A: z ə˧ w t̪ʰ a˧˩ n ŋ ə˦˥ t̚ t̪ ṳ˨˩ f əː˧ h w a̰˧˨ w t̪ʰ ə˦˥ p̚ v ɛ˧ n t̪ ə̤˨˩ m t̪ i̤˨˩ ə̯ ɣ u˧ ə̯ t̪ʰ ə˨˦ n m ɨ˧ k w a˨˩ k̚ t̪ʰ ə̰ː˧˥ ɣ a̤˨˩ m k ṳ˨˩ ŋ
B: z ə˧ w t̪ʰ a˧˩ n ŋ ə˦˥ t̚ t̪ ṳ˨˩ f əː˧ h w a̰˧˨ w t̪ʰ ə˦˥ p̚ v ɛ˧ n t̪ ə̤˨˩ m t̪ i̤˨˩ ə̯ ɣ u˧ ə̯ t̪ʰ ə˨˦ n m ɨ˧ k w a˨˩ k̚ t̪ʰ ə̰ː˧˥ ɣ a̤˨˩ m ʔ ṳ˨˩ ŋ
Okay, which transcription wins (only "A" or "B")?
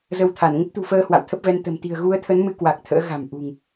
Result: B